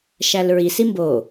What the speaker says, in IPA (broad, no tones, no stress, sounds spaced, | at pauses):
ʃ æ l ɹ i s i m b o